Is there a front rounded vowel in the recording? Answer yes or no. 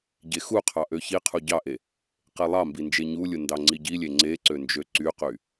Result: yes